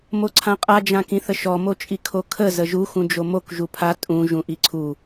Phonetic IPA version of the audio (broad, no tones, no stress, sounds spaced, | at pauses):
m o ǀʰ ã qʼ a d͡ʒ ã k ĩ θ ə ʃ ɔ m o t͡ʃʼ i kʰ o kʰ ə z ə ʒ u x ũ d͡ʒ o m o k ʒ u pʰ a tʼ ũ ʒ ũ ʔ i ǀʰ u